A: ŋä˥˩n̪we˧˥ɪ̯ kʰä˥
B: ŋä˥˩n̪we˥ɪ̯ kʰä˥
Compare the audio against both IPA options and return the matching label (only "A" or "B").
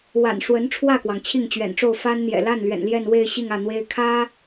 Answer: B